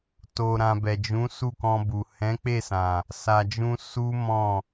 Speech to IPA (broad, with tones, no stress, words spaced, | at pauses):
to˨ɾã˨ bɛ˨d͡ʒũ˨˦ su˦˨kɔ̃˧bu˨ hɛ̃˨˦k͡pe˦˨sã˨ | sa˨d͡ʒũ˧ su˦ mɔ̃˦˨